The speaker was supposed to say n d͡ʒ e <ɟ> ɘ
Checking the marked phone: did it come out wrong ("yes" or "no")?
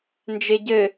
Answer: no